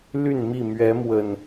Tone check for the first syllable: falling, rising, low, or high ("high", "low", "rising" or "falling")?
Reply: falling